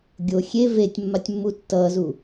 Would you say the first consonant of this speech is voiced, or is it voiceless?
voiced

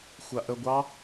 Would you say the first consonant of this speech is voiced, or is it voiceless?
voiceless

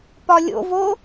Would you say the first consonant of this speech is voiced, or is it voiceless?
voiceless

